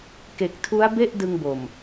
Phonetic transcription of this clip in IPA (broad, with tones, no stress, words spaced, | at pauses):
ke˨˩k̚tʰu˦˥a̯be˥˩ʔ dɯ˧ŋbo˨˩m